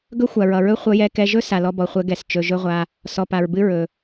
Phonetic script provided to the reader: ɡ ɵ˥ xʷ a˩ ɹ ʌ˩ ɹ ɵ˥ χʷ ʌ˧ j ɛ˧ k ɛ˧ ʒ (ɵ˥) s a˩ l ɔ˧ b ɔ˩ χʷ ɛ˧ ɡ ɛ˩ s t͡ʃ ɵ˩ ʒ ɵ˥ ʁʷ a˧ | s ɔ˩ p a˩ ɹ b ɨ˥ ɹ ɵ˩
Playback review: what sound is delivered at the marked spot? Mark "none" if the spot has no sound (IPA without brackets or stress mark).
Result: ɵ˥